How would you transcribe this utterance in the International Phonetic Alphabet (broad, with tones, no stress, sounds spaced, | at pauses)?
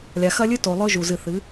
lʲ a˨ x ɐ˦ lʲ ɨ˦ t o˨ lˠ ɵ˦ ʒ u˨ z ɨ˨ θ ɨ˨˦